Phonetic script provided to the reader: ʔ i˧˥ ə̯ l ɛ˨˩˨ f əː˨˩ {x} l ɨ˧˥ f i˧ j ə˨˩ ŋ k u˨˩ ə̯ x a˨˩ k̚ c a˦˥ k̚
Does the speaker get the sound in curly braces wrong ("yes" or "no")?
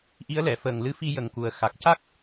yes